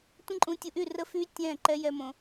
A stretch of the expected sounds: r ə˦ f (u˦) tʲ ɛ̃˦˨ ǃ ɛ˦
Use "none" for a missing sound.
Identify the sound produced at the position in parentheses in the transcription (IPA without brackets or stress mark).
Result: y˦